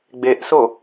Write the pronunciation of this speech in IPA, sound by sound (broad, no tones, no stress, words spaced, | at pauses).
ɡ͡beʔso